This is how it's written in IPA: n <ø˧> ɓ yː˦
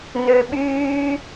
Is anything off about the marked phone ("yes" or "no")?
no